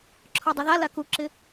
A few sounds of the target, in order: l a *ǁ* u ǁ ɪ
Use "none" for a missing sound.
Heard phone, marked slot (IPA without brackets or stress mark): k